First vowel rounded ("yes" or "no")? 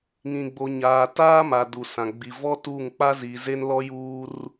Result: no